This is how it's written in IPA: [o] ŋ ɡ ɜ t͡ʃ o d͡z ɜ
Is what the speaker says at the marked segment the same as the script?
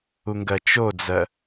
no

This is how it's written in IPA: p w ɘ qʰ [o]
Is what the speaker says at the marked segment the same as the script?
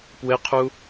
no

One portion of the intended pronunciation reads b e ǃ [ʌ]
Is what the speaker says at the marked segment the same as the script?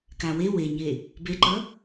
yes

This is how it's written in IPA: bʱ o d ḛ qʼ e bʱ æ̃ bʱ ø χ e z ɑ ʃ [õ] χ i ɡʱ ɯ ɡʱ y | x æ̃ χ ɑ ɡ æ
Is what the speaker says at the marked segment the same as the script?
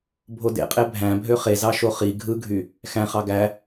no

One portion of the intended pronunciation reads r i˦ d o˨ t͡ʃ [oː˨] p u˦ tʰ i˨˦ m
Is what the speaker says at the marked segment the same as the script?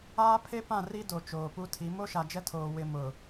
yes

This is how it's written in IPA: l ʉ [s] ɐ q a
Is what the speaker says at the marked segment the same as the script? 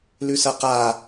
yes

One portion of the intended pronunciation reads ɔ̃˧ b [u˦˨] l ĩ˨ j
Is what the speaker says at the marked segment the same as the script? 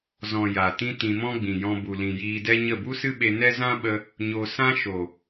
no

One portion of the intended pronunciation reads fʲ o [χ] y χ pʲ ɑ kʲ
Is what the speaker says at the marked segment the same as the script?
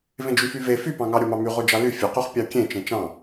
no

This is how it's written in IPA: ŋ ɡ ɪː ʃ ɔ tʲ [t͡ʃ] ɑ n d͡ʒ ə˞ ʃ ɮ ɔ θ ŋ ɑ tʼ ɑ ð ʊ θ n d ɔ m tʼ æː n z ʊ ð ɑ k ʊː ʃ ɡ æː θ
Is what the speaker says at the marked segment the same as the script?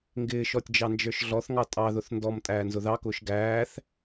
no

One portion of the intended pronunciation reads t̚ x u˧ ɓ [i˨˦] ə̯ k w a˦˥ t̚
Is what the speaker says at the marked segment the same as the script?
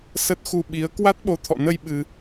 yes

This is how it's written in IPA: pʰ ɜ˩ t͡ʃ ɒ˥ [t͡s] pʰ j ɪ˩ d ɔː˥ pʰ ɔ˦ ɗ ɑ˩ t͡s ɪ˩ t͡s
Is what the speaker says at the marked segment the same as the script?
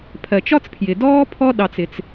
yes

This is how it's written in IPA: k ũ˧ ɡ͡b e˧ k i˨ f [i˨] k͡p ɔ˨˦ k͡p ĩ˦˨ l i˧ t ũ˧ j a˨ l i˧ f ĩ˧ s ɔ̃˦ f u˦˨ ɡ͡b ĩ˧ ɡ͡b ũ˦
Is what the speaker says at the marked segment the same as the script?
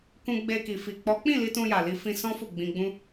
yes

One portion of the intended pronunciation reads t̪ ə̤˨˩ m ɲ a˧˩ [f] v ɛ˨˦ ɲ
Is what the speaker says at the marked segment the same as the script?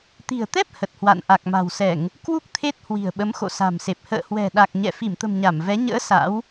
no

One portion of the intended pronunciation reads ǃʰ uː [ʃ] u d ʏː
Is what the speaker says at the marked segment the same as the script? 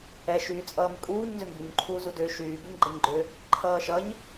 no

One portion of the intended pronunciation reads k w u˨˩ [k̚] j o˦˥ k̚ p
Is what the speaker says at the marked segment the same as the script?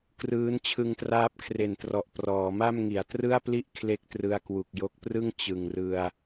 yes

